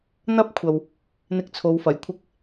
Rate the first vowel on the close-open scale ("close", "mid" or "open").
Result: open